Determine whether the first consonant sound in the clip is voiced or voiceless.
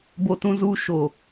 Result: voiced